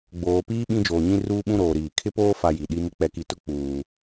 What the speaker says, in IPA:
ɡ͡b oː˨ p iː˦ ɓ ĩ˦ d͡ʒ oː˨ ɲ ĩ˦ r uː˦ ɓ ũ˦ ɾ oː˨ ɾ iː˨ kʰ ɪ˦ p oː˦ f a˦ j i˨ ɗ i˦ m ɪ˦ k͡p ɛ˨ k i˨ t ʊ˦ k͡p uː˨

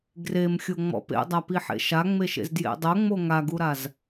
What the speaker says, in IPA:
ɡ r e m xʲ o ŋ͡m ɔ̰ p ḛ dˤ a p i ħ ḛ ʃ a ŋ͡m e ʃ ḛ z d j ḛ dˤ o ŋ͡m o ŋ a ɡ u ɾ a z

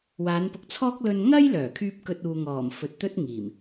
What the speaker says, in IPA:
w aː˨˧ n p ʊ˨ k̚ t͡sʰ ɔː˥ k̚ l ɵ˧ n ŋ ɐ˥ j l œː˨˩ kʰ yː˧ p̚ k ɵ˧ t̚ uː˨ ŋ ɔː˨˩ m f ɵ˨ t̚ t̪ ɵ˥ t̚ ŋ iː˨˩ m

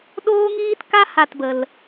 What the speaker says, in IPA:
ɗ oː˦ ŋ iː˦ t k a˦ h a˦˨ t b ə˨ l

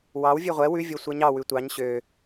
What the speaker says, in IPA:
w ɑ w vʲ ø ʁʷ ɛ w ʉ vʲ o sʷ ɛ ɲ ɑ w ʉ tʷ ɑ ɲ ɕ ø

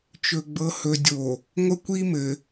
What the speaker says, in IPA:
t͡ʃ ɵ˨ ɡ͡b ɤ˨ h ɵ˨ dʲ o˨ | ŋʷ ə˦ kʷ i˦ m ɘ˨

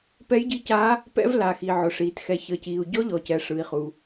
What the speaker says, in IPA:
p ɛ˧˥ j ɟ i˧˥ c a˧˥ | p ɛ̰˧˥ v l a˩ x i˩ ʕ ʊ˩ ʂ iː˩ t x ɛ˩ ç əː˩ c iː˩ u̯ ɟ ɔ˧˥ ʎ ɔ˩ c ɛ˩ ʂ ɯ˩ i̯ χ u˩

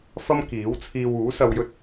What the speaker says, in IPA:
f ɐ˥ m k iː˨˥ w t͡sʰ iː˧ w uː˨˥ s ɐ˧ w j ɵ˥ t̚

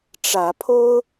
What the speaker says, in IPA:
ʈ͡ʂ ä˨˦ pʰ o˦ ʊ̯

